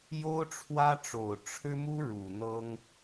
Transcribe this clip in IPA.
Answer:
j o˥ ʊ̯ ʈ͡ʂʰ w ä˥ ʈ͡ʂ o˨˩ ʊ̯ ʈ͡ʂʰ ɻ̩˥ m u˥ ɻ u˨˩ n̪ ɤ˥ ŋ

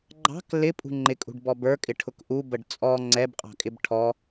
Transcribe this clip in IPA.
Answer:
ɡ͡ǃ ɑ̤ k l ɪ pʼ ṳ ŋ͡ǃ ɪ kʼ ṳ ɖ b ɔ b ə˞ kʼ ɪ ʈʰ ʊ k ʔ u b ə ɖ t͡sʼ ɔ ŋ͡ǀ ɛ b qʼ ɑ̤ kʼ ɪ b ʈʰ ɔ

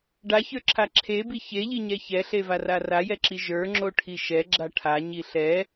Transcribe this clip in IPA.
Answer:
ɖ a ç ə˞ ǁʰ a ǁʰ e b i ç e ʎ i ɲ ɛ ç ɛ ɬ e v a r a r a j ɛ ǁ i ʒ ə˞ ŋ͡ǁ o ʈʰ i ʃ ɛ ɡ͡ǁ a ʈʰ a ɲ i ɬ ɛ

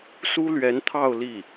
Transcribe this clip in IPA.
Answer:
s u˥ l ɥ ɛ˧˥ n t̪ʰ ɑ˥˧ ʊ̯ l i˥˩

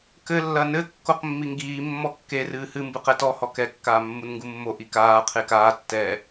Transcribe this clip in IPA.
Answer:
k ɘ lː ɐ n ɘ kː o q mː i ŋ ɡ iː mː ɔ kː e r ɨː h ɨ m b ɨ q ɛ t ɔ h ɔ k ɛ kː aː mː u n ŋ ɡ u mː o ʔ i k aː qʰ e k aː tː ɛ

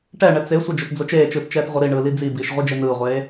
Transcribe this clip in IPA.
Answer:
ʈ ɛ ɳ ɛ t͡s e sʷ ʌ d͡ʒ o t d͡z o t͡ʃ eː t͡ʃ ɯː t t͡ʃ ɛː t ʁʷ ʌ ɾ i ɳ ɯː l i d͡z i b iː ʃ ʁʷ i d͡ʒ e n ɯː ʁʷ eː

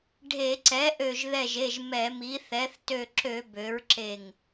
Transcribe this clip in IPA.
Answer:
ɖʱ e˧˩˧ ǀ ɛ˩˥ ʔ ø˧˩ ʒ ð ɛ˧˩ ʒ e˩˧˩ ʒ m ɛ˧˩˧ m i˩˥ θ ɛ˩˥ θ t ø˧˩ ǁ ø˧˩˧ b ø˩˥ ɹ ǁ e˧˩ ŋ

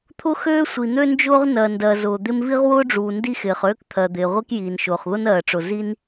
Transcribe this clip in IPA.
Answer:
t̪ʰ ʊ˥ x øː˥ sʷ i˩ n̪ ø˥ n d͡ʒ ʊː˥ ʁ n ɜ˩ n d ɜ˩ z ʊː˩ d̪ ɪ˥ m v i˥ ʁ w ʊː˥ ɖ͡ʐ uː˩ n d i˥ x ɪː˩ χ øː˥ k t̪ʰ ɜ˩ d̪ ɪː˩ ʁʷ i˥ k j iː˩ n ʃ ʊː˩ χ ð ʊ˥ n ɜː˩ ʈ͡ʂ ʊ˩ z i˥ n

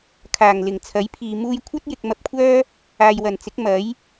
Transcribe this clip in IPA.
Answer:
kʰ aː˨˩ ŋ l ɪ˨˩ ŋ t͡sʰ ɐ˨˥ j pʰ iː˨ m uː˧ j kʷʰ ɐ˥ t̚ j ɪ˨ k̚ m ɐ˧ p̚ kʷʰ œː˥ | aː˨ j w ɐ˨˩ n t͡s ɪ˨˥ k̚ m ɐ˨˥ j

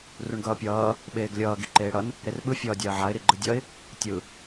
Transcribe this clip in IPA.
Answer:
r u ɳ ɡ ʌː pʲ ʌː | ɓ eː ɡ lʲ ʌː ɡ i ǃ eː ɽ ʌ n | ɾ e r ɓ ɯ fʲ ʌː dʲ a ə̯ ʕ a ɪ̯ ɾ i ɡ͡ǃ ɯ dʲ ʌ ɪ̯ | tʲ ɯ

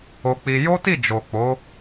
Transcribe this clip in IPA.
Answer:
o˧ k͡p i˧ j o˦ t i˦˨ d͡ʒ o˨ k͡p o˨˦

